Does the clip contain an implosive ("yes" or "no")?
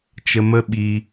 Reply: yes